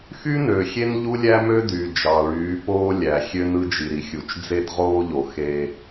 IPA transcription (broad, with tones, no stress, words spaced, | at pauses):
xy˦nø˨xʲe˦n ʎu˦lʲæ˦mø˦ dy˨ d͡ʒɑ˨ɭyː˨˦poː˦lʲæ˨ xʲø˦nɯ˦d͡ʒi˨ɾi˨ xʲu˨t͡ʃd͡ze˦dʁoː˦ʎo˨ xe˦